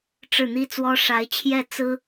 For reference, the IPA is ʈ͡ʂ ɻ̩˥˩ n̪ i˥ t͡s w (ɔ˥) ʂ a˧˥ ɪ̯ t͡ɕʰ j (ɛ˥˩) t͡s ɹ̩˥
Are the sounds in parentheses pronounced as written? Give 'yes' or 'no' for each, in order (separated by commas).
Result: yes, yes